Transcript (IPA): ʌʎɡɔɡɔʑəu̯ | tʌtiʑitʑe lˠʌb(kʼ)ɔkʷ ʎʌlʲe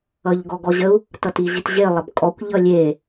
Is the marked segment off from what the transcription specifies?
no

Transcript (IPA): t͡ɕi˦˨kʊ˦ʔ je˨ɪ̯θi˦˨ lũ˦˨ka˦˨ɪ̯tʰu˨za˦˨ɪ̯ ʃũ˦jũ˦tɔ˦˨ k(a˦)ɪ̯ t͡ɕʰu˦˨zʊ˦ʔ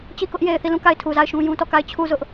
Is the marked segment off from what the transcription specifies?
yes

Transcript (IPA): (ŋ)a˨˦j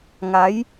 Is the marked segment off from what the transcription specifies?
no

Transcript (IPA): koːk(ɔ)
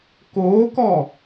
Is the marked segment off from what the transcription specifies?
no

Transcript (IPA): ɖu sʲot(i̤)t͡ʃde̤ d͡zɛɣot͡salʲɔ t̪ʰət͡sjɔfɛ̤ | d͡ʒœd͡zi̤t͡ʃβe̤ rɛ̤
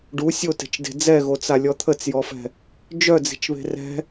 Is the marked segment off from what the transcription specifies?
yes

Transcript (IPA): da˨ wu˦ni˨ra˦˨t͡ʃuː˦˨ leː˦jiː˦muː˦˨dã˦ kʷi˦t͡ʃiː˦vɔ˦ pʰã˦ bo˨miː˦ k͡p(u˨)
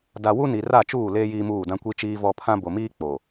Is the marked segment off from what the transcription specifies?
yes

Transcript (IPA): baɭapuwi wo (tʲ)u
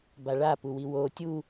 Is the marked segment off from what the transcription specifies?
no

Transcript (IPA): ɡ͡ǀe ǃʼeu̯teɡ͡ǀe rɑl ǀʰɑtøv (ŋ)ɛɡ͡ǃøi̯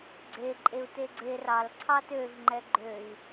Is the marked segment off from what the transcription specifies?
yes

